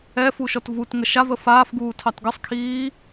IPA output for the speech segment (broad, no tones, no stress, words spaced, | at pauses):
ɛ fuʃɔtvutŋə ʃavə faːfɡuː tʰɑtɡəsˤkʰiː